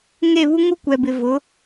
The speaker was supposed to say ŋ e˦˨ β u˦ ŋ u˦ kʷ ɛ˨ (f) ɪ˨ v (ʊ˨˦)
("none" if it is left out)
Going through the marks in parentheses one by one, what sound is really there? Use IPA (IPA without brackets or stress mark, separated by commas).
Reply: b, ʊ˨˦